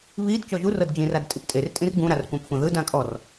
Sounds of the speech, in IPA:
βid t͡ʃɔʒurɤd d͡ʒĩrad tʼiptʼertʼĩr ɡũɾar kʷãpxʷɛ̃ðɯdã kʼɔr

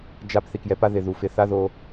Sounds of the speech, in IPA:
d͡ʒa˧p θi˨kjɛ˧pa˦ ðɪ˨ ðu˨fɪ˧ θa˦ðo˧

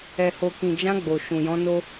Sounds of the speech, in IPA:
ɛ˨ho˨kĩ˨d͡ʒã˧ ɡ͡bo˨ʃũ˨jɔ̃˨˦ no˦

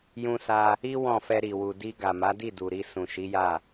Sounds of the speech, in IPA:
jũ˧sa˧ | i˦ wɔ̃˦˨fɛ˧ ɾi˨ wu˨di˧ ɡa˨ma˨˦di˦˨ du˨ɾi˧ sũ˨ʃi˨˦ja˦˨

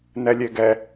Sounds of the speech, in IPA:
nɛlʲeɡɛ

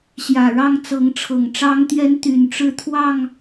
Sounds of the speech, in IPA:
ɕjä˨˩ɻɑ˥˨ŋ t͡sɤ˨˦ŋʈ͡ʂʰɤ˨˩ŋʈ͡ʂɑ˦ŋt̪jɛ˦n t̪y˨˩nʈ͡ʂɻ̩˥˨ t̪ʰwɑ˥˨ŋ

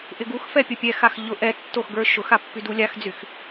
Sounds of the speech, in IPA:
ʔɪɡuxfɛ pʲʊpʲɛxax ʎʊ ʔɛtːox ɡə˞ʃʊxa pːydulʲaxd͡zyx

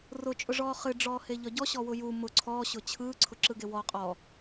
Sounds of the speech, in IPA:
rʊt͡ʃʼʊʐɔː χɨɖ͡ʐɔː heʎɒɟɔ ɕɔwʊju mʊ ǀʰɔːɕʊ t͡ɕʰɯː ǀʰʊǁɯɡewɔ qʼɔ

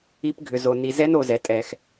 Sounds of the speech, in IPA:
i˦˥pɡʱʏ˧zo˧ ni˧ zɛ˦˥no˧zɛ˨˥ tʼɛ˧x

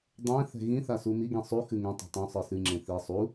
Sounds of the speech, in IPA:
dˤɛ̃θɛ̤ ɣĩθasu miɡĩ sˤuxɨ ŋɛ̃tˤɛ̤ tˤũsˤɨ sɨŋ͡ǁẽ θi sˤu

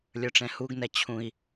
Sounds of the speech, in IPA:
lʲə˞ʈ͡ʂɛ̃huɡnɛ t͡ɕʰũi̯

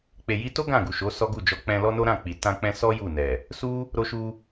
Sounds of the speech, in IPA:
k͡pe˨ji˧to˦ ɡã˦˨ɡu˨ʃo˨˦ sɔ˦ɡu˦˨d͡ʒɔ˧ k͡pɛ̃˧ lɔ˦no˦ɾã˦˨k͡pi˨ tã˧k͡pɛ̃˧sɔ˦ ju˦˨nɛ˨ | su˦ | ɾo˧ʃu˧

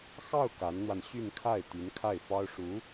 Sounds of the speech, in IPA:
xɑ˥˩ʊ̯ ka˧˥nn̪wa˧n ɕy˥˧nkʰa˥˩ɪ̯ t̪y˧˥nkʰa˥˩ɪ̯fɑ˥ʊ̯ ʂu˧˥

